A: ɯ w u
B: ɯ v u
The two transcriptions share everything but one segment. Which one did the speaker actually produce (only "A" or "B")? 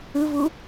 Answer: B